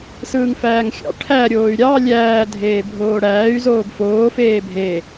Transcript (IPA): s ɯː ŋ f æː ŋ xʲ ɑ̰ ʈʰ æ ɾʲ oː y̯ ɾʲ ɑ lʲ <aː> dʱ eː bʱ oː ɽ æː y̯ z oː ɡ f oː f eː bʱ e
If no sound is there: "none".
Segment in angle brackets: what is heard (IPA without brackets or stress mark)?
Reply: æː